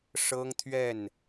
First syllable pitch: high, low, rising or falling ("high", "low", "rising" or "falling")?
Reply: high